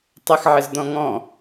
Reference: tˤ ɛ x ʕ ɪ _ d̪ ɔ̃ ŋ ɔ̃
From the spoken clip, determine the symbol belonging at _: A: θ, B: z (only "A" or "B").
B